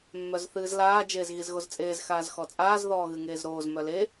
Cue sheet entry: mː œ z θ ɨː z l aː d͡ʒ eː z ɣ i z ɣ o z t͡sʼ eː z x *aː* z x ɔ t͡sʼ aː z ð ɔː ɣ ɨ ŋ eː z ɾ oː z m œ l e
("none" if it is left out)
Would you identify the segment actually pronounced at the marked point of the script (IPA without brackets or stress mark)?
aː